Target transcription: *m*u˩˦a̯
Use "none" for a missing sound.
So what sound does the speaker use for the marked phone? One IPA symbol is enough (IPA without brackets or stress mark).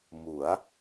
m